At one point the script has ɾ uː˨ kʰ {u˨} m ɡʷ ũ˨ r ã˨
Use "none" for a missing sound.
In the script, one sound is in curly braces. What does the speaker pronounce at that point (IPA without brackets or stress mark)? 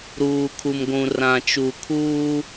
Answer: u˨